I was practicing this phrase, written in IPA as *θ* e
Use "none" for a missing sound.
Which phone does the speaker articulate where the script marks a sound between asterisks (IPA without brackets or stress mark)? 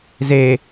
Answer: z